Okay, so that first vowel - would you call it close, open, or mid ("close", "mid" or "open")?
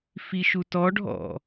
close